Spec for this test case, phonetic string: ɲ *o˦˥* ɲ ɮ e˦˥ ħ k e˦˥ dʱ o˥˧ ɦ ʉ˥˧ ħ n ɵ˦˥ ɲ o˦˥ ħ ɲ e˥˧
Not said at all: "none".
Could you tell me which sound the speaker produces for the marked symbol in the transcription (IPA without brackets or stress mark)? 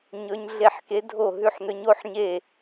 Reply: ɵ˦˥